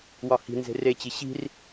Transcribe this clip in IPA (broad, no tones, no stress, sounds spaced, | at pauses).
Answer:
w ɒ h i̤ n z e̤ r e t͡ɕ i ɕ i̤ r